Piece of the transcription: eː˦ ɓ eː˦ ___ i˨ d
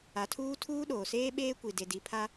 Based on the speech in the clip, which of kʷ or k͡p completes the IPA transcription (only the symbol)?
kʷ